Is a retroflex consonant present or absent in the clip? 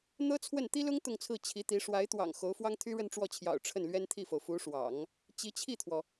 present